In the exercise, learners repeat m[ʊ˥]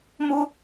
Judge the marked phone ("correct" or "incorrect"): correct